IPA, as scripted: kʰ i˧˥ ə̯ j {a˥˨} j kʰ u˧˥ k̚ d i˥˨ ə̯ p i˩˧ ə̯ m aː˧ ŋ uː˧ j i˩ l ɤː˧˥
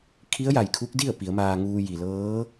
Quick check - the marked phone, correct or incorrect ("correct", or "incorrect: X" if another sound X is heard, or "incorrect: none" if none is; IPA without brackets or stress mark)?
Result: incorrect: a˩